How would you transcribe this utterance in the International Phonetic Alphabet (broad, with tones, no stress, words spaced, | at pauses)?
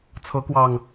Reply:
t͡sʰɤ˨˦kwɑ˨˩ŋ